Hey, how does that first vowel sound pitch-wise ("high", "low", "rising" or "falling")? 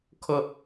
high